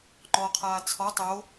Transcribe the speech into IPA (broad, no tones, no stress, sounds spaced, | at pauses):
ŋ͡ǃ ɔ qʰ aː t͡sʰ ɔ tˤ o